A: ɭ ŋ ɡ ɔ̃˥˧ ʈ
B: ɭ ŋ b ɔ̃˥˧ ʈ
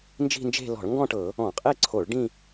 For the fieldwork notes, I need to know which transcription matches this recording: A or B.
A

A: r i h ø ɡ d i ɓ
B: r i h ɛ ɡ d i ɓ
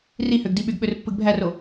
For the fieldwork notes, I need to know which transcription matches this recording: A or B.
A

